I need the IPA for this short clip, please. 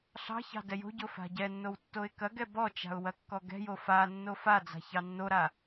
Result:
ɬ ɑ̤ ç ɑ̤ d ɛ j o̤ ɟ o f a̤ ɟ ɛ nː o w tː o ɪ̯ k ɐ ɡ ɛ b ɔ t͡ʃ a̤ ʊ̯ w ɐ kː ɔ ɡ ɛ̤ j o f a nː o f a d͡z a̤ ç ɑ nː o ɾ a

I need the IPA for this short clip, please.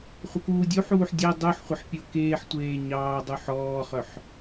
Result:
χʷ ə k uː dʲ u ħ uː ħ dʲ e dˤ u ħ χʷ ə ħ pʲ o k eː ħ tʷ eː ɲ ɑː dˤ u ħ ɔː χ œ ħ

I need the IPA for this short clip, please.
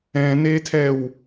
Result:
ɛ̃ n e tʰ ɛ w

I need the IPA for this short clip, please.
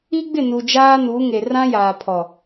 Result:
i˦ ɡ͡b ɪ˦˨ n u˨ d͡ʒ aː˦ n u˨˦ ŋ e˨ r ã˦ j aː˨ pʰ ɔ˨

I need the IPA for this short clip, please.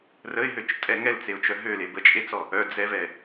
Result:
r ə ɪ̯ ɦ ø t͡ʃ tʼ ɛ ŋ ɛ l t͡s e ʊ̯ t͡ʃ œ ɦ ø l e b ə t͡ʃʼ e t͡s ɔ | œ d͡z ɛ v ɛ

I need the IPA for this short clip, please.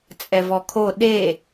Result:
t͡sʼ ɛ v ɔ kʰ o ɗ e

